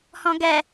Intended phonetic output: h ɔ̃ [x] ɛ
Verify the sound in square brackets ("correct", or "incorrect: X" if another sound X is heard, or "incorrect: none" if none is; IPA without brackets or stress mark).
incorrect: ɡ